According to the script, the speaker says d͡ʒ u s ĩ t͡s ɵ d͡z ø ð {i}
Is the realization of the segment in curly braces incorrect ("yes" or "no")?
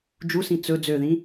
yes